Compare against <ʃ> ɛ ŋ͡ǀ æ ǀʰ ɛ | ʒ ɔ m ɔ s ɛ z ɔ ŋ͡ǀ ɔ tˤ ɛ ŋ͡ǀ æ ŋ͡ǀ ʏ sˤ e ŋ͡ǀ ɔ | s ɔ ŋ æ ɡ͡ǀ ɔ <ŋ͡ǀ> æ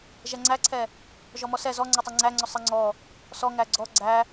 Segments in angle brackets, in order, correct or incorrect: incorrect, incorrect

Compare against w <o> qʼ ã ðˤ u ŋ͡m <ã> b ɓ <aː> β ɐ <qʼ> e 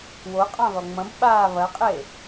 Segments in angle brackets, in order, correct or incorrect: correct, incorrect, correct, correct

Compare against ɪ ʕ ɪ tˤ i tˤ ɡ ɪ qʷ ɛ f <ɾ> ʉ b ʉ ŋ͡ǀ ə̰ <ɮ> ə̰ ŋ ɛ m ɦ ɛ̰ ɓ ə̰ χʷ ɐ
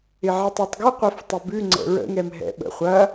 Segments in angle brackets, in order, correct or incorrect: incorrect, incorrect

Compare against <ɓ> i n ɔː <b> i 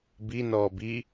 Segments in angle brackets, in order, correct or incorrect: incorrect, correct

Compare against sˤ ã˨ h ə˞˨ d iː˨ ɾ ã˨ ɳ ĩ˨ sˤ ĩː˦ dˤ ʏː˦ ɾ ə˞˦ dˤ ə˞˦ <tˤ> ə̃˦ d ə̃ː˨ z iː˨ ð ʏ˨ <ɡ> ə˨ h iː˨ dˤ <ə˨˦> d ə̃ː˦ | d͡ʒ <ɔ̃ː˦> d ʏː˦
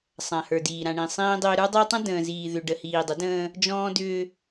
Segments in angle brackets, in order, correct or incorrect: correct, incorrect, correct, correct

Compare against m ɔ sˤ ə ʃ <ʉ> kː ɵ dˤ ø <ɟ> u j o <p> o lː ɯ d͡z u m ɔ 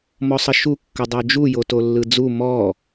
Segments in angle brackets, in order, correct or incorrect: incorrect, incorrect, incorrect

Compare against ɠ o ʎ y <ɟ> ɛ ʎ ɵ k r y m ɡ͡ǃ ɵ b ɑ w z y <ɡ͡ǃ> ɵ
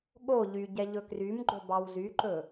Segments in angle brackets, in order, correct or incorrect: correct, incorrect

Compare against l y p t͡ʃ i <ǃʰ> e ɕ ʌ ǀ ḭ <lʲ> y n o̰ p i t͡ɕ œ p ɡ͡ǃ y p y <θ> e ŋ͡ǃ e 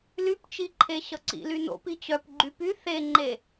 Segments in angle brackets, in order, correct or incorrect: correct, incorrect, correct

